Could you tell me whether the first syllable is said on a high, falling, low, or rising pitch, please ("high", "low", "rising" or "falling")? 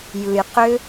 low